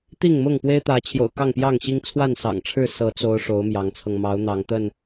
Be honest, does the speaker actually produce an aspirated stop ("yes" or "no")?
yes